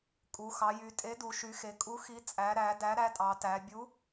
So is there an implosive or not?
no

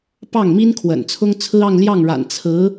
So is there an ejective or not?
no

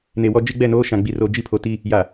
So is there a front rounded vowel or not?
no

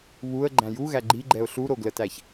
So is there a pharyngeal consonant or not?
no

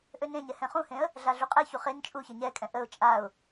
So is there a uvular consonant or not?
yes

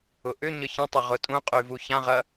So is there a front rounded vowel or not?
yes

